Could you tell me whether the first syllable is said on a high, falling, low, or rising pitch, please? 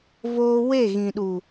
high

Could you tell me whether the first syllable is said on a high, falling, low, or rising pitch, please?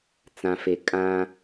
low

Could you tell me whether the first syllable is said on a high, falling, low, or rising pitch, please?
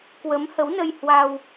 rising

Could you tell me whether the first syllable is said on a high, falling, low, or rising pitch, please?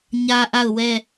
high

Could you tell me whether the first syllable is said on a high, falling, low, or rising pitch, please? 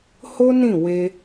high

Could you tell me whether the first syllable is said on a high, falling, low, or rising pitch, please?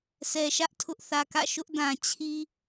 low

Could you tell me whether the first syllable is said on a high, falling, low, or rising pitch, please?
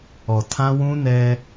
low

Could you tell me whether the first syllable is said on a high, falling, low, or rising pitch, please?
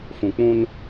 low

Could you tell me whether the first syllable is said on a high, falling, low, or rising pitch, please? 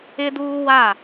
high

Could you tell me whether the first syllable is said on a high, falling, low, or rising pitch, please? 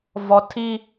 low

